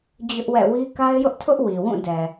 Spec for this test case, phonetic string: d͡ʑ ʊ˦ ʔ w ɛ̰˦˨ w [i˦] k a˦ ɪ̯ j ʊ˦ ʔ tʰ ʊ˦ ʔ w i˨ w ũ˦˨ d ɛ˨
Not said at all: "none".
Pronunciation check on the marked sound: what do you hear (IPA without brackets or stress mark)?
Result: i˦